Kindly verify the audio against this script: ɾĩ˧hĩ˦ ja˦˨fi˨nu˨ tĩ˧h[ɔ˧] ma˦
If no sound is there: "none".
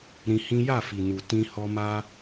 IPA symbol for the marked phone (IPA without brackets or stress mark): ɔ˧